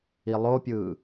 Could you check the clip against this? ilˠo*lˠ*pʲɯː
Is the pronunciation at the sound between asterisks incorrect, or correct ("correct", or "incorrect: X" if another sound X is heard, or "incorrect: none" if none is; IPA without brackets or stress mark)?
incorrect: none